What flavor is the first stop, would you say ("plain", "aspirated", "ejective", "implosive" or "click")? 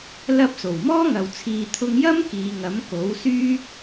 plain